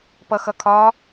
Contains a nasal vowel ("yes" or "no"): no